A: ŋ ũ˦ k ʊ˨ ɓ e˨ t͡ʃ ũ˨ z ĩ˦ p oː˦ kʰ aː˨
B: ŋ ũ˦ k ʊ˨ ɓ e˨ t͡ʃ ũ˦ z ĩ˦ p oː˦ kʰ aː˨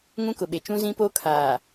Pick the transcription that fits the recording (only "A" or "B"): B